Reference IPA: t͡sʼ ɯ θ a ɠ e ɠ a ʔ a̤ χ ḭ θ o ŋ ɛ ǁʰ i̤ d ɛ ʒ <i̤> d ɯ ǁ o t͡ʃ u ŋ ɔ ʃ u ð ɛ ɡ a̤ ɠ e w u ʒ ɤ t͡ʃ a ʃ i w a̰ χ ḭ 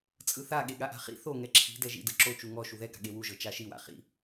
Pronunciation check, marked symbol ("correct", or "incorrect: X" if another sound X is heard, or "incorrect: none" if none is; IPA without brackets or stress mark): incorrect: ḭ